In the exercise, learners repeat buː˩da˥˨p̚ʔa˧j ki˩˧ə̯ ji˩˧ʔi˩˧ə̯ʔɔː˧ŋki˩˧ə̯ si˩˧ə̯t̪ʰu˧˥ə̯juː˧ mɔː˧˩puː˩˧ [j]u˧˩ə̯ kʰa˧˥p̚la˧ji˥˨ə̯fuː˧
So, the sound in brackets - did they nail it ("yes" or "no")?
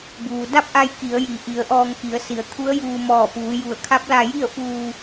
yes